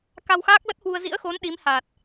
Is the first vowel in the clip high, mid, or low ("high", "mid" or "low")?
low